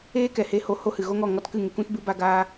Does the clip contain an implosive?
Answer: no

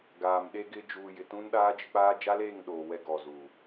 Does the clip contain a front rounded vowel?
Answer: no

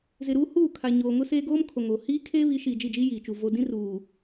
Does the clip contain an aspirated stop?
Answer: yes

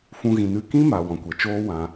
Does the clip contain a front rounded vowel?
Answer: no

